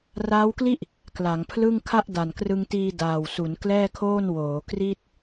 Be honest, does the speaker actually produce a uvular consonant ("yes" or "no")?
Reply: no